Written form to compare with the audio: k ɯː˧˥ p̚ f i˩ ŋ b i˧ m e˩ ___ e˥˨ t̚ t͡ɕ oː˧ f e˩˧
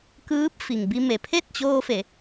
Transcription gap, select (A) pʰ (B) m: A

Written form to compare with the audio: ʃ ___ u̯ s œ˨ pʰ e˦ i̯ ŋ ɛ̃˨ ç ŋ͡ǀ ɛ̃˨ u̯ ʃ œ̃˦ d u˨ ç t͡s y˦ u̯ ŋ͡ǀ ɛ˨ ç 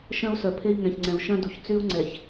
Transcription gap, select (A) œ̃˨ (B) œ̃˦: B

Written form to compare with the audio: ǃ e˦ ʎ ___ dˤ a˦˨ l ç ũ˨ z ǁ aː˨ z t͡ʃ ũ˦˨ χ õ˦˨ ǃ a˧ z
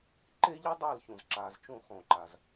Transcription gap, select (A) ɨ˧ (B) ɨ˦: B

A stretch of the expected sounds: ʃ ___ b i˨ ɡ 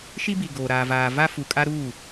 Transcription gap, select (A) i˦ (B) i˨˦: A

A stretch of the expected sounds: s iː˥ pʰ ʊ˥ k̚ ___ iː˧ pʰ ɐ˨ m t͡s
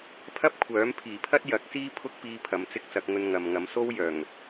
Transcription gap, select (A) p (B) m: A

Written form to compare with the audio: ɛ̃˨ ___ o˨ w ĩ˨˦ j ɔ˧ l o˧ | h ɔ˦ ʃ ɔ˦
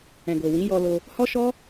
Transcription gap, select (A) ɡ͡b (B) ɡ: B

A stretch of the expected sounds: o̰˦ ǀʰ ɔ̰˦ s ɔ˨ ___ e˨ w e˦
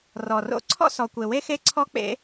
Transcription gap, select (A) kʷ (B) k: A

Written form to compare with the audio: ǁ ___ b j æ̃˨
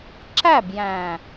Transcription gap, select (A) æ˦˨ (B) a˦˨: A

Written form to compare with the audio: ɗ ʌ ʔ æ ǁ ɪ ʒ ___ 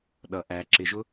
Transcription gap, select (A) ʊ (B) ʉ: A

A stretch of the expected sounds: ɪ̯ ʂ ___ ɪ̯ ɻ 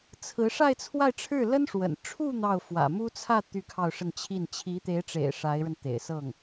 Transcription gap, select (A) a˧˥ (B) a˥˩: A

